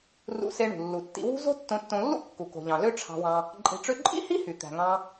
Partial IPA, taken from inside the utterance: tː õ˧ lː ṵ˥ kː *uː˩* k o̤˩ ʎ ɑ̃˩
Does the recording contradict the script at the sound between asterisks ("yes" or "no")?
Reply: yes